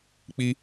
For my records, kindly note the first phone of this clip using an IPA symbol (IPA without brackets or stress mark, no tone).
k͡p